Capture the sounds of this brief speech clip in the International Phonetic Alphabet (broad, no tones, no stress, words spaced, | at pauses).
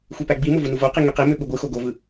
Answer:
xʷepæɡ͡bimo vunuvoqi ŋyqimø ɓuɡʷɯxo ɡovɯ